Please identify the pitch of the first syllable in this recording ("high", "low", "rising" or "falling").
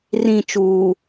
falling